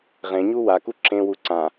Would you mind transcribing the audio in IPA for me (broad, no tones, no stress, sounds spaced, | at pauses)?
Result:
ʁ ẽ ɲ u w a k u ǁ ẽ w u ǀ ã